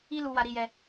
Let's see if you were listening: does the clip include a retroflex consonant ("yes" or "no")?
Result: no